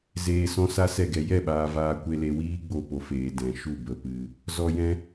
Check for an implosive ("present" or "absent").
present